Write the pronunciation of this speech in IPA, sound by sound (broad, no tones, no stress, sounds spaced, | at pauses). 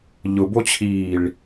ʎ ʊ b o t͡ɕʰ iː ɭ